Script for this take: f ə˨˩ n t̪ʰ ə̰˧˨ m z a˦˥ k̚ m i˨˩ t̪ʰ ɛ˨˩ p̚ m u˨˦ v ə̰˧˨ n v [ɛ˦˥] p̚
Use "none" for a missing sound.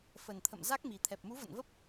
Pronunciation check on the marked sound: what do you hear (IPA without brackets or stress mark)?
ə˦˥